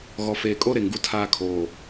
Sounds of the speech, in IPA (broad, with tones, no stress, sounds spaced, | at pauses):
ɣ ɔ˨ f eː˨ kʼ o˦ ɾ e˨ ŋ ɡ u˦ tʰ aː˦ kʰ oː˨